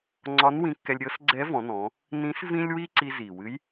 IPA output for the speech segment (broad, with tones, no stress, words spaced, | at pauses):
ŋ͡ǀɒ˧˥nwĩ˧kːɛ˧lʲ ɾʲɤ˧˥s ɡ͡ǀɛ˧˥vɔ̃˩˧nɔ̃˩˧ | nĩ˧˥s vĩ˥lʲwi˥ǀi˧ zi˩wɨ˧˥j